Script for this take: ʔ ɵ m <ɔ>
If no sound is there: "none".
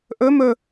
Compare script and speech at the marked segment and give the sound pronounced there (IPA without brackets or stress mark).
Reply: ɵ